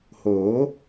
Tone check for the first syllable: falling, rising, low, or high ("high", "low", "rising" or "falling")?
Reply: rising